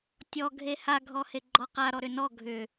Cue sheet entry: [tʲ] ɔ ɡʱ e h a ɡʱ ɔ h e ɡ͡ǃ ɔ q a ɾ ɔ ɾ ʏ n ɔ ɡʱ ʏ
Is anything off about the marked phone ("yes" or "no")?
no